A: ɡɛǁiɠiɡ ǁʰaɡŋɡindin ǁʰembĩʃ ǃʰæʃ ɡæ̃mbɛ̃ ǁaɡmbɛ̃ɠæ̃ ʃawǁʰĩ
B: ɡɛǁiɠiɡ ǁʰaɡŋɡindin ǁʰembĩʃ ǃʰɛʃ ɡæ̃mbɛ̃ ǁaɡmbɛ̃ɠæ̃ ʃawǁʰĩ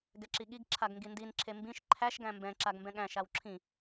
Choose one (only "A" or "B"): A